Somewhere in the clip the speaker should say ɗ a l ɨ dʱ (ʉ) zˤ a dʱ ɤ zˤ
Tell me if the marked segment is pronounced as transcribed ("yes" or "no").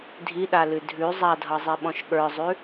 yes